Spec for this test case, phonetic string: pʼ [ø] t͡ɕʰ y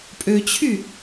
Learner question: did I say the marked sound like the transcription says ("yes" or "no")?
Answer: yes